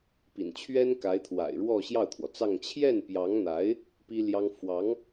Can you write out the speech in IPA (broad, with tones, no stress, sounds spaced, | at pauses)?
p ḭ˨˩ n t͡ɕʰ ɥ ɛ˥ n k a˧˥ ɪ̯ t̪ʰ w a̰˨˩ ɪ̯ ɻ w ɔ˥˧ ɕ j ɑ˥˩ ʊ̯ t̪ʰ w ɔ˩ t͡s ɑ˥˧ ŋ t͡ɕʰ j ɛ˥˩ n p j ɑ˧˥ ŋ n̪ a˧˥ ɪ̯ | p i˥ l j ɑ˥ ŋ f w ɑ˧˥ ŋ